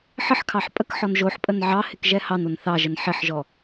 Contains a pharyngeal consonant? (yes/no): yes